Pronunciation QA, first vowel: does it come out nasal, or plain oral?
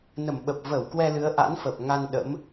oral